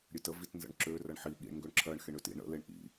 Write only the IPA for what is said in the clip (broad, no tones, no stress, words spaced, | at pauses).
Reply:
ɾʲøtə vitnzə̰ɳǁø rɐɳħi ɠḭɳ ŋɡøɳǁʰɜɳ xeɳøtḭ ɳə̰ leɳʔḭ